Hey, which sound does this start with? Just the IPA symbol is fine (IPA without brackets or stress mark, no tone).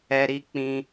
ɛ